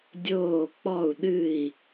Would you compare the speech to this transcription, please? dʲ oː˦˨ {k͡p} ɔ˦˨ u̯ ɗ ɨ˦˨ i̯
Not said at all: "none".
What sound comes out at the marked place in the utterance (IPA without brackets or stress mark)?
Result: k͡p